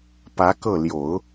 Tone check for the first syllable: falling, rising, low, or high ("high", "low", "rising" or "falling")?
rising